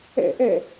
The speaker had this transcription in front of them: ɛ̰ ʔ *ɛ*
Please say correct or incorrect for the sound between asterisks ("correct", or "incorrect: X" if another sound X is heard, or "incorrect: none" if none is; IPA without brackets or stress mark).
correct